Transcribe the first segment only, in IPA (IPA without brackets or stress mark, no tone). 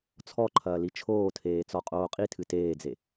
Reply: t͡sʰ